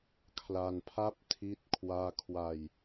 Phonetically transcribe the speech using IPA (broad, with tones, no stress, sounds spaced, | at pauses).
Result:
kʰ l a˧ n pʰ a˥˩ p̚ tʰ i˥˩ t̚ kʰ w aː˥˩ kʰ w a˧ j